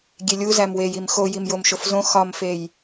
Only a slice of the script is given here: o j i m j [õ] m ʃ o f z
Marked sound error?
yes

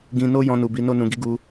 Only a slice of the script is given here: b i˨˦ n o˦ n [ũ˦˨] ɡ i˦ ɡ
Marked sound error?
yes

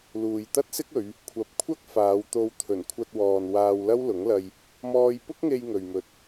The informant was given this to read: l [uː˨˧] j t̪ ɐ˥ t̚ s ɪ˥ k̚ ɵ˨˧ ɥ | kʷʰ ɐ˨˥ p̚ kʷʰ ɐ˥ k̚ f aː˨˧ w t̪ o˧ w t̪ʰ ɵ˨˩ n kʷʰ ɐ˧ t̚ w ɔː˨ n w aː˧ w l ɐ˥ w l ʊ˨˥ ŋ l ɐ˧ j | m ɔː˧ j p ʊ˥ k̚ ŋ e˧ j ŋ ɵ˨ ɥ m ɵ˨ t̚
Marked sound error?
yes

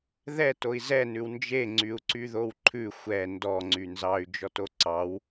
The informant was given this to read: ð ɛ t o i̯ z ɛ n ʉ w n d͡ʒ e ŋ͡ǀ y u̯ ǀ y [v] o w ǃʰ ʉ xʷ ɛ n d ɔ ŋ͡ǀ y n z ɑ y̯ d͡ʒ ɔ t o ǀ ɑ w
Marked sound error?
yes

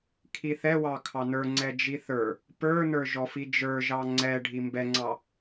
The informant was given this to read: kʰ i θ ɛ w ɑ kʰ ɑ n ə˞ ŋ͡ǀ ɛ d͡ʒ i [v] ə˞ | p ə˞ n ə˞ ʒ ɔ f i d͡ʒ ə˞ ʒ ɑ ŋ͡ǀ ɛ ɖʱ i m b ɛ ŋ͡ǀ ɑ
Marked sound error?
yes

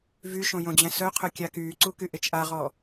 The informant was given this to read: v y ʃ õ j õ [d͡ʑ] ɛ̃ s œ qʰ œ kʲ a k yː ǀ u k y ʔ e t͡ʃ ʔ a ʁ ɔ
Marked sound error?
no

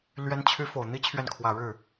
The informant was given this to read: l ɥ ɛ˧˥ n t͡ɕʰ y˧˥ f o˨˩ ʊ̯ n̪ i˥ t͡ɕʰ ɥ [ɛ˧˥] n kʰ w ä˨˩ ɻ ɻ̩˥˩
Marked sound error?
yes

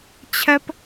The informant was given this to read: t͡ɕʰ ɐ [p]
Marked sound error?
no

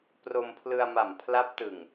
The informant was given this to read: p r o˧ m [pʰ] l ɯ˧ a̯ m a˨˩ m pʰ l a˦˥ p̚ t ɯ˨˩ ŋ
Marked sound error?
no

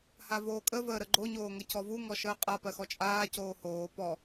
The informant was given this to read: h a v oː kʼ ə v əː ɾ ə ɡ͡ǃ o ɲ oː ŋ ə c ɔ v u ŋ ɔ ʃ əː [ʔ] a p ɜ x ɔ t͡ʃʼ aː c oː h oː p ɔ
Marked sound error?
yes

